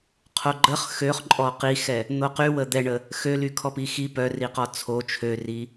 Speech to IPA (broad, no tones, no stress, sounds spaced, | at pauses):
qʰ o ɡ͡ǃ ə χ x ø χ ǃʼ ɔ q i x ɛ | n̪ o q y w ə d̪ ɛ ɳ ə | x ø l y kʰ ɔ p i x i p œ r i q ɔ t͡sʰ o t͡ʃʰ ø r i